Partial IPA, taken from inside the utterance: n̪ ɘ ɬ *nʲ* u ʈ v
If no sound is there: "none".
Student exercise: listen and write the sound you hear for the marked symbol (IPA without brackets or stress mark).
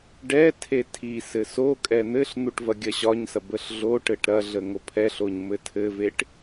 n̪